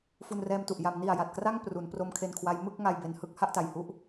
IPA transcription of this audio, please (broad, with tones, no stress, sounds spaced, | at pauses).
f u˧ n r ɛː˧ m t u˨˩ ʔ j a˩˦ m n i˨˩ a̯ j a˨˩ t̚ k r a˥˩ ŋ p r u˩˦ n p r o˦˥ m kʰ e˧ n kʰ w a˦˥ j m ɯ˥˩ k̚ ŋ a˧ j b e˧ n h ɯ˦˥ k̚ h a˥˩ ʔ t a˨˩ j h u˥˩ ʔ